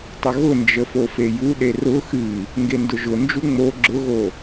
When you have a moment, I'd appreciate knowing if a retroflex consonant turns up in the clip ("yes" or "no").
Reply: no